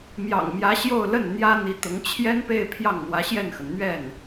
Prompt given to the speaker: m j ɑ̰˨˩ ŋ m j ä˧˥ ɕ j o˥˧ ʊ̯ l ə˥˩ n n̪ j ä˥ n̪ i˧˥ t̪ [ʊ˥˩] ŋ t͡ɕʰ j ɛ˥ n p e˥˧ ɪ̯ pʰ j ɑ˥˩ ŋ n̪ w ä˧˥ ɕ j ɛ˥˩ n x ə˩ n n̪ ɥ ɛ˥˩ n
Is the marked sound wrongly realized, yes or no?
yes